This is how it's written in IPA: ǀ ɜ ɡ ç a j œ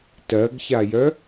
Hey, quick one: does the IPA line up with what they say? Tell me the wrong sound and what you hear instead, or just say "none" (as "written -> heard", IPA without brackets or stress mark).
ǀ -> t